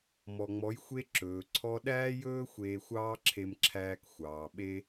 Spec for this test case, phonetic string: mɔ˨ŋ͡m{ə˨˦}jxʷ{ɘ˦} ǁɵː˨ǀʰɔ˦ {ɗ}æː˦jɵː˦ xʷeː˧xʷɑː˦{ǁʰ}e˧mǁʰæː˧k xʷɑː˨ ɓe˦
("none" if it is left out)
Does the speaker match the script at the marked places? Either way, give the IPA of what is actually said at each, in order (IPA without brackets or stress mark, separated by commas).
ɔ˨˦, e˦, ɗ, ǁʰ